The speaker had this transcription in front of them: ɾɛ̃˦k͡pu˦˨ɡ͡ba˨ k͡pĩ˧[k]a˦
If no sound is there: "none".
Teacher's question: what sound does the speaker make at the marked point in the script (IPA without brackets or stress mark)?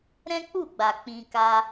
k